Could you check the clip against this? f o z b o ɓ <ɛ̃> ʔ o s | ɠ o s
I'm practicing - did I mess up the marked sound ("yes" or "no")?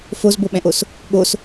no